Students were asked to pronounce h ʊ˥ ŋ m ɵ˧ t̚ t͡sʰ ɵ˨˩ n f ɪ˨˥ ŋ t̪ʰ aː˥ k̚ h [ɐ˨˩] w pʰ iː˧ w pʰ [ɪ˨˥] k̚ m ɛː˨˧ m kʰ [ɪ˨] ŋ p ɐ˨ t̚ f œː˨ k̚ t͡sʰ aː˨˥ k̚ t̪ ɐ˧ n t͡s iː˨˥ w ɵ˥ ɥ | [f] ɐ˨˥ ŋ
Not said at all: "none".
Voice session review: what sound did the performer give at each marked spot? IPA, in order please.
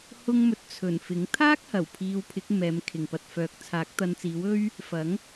ɐ˨˩, ɪ˨˥, ɪ˨, f

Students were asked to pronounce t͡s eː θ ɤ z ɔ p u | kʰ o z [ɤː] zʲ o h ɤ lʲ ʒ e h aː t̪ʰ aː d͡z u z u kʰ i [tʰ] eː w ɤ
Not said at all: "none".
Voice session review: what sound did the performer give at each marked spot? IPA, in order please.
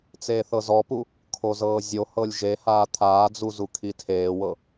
ɤː, tʰ

